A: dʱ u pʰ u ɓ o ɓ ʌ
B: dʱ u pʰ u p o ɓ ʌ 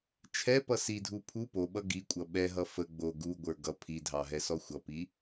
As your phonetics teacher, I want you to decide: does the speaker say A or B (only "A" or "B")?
B